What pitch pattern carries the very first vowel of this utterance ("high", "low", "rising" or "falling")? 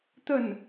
falling